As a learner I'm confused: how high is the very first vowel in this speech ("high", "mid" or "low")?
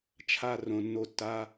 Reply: low